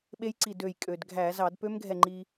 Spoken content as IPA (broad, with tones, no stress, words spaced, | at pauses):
ɓe˦˥jǀi˧˩dø˧˩j kʼø˩dɡʱæ˧˩˧ zɑ˧˩˧dpø˦˥mɡʱɛ˧˩ ŋ͡ǃi˧